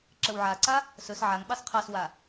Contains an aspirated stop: yes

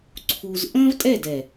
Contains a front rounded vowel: no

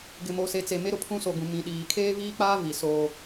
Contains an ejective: no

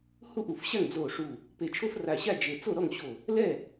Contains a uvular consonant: no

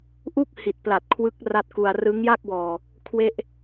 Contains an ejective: no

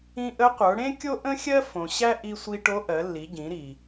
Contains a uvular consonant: yes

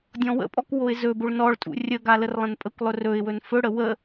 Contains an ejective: yes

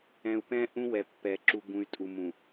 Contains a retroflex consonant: no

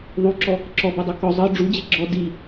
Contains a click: yes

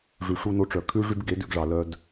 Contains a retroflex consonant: yes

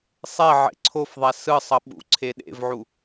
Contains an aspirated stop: yes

